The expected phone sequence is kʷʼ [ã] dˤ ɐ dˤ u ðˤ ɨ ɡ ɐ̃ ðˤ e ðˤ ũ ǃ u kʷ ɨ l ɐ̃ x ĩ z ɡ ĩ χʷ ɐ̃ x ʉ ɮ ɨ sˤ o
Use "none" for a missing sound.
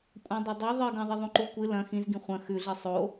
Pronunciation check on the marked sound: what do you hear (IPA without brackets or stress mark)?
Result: ã